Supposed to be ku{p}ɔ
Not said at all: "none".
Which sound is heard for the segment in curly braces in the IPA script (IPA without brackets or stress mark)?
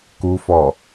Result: f